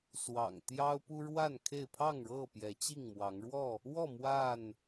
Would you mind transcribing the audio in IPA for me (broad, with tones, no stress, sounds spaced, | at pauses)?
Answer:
s w ɑ̰˨˩ ŋ t̪ j ɑ˦ ʊ̯ p u˦ ɻ w a˥˨ n kʰ e˥˨ ɪ̯ pʰ ɑ˥˨ ŋ ɻ ɤ˥˨ p j ɛ˨˦ t͡ɕ i˥˨ ŋ m w ɑ˨˦ ŋ ɻ w ɔ˥˨ | w ɔ˥˨ m w a˥˨ n